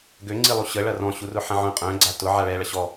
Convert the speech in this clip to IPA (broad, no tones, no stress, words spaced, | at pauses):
ɡøŋ͡ǀilˠu ɕə ɭɐrɔ̃ɕurʊ ħɐ̃ʕœ̃ qʼœ̃ɡ͡ǀa tʊ ʕaɭɛ ɭɐɕɔ